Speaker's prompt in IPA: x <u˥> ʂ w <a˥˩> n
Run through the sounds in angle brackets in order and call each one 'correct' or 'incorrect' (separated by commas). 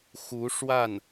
incorrect, correct